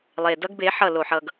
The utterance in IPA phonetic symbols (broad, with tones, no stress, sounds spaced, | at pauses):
lˠ e˨ d ʌ˦ ɡ b e˨˦ ħ ʌ˦˨ l o˨ ħ ʌ˨ ɡ